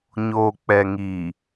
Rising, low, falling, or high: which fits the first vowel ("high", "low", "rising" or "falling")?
low